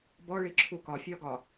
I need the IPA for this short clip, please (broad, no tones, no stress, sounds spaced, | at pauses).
b ɔ ɭ i ǁʰ u k ɒ fʲ ɒ ɡ ɒ